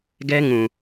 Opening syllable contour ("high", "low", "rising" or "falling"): high